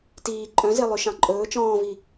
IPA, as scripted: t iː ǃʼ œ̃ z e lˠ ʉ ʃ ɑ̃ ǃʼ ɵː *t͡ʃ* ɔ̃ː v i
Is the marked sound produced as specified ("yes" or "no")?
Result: yes